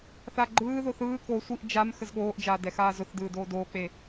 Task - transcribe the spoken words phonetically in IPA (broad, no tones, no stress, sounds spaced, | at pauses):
θ a ɡ͡ǃ ɯː ð o θ ɯː k o sʷ i ʔ d͡ʒ a m x ə z ɠ oː ʔ d͡ʒ aː d ɛ x aː z ʊ θ d ɯː d oː d oː k͡p e